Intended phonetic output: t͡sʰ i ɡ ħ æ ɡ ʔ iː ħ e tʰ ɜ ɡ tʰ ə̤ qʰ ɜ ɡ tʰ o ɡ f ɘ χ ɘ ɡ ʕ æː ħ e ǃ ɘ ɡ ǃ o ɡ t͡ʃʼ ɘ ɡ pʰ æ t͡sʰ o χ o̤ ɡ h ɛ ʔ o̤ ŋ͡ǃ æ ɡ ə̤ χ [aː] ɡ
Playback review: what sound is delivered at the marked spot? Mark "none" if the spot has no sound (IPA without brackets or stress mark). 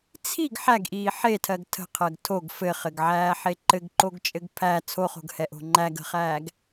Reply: æː